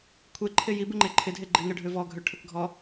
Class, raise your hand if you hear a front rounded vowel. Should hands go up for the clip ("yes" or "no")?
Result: yes